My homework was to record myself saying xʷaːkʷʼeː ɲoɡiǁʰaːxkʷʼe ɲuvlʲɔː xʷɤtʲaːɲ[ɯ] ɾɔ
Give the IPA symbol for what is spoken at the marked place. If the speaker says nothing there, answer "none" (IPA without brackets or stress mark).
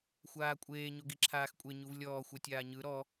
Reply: ɯ